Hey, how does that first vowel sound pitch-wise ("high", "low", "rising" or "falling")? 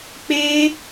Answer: high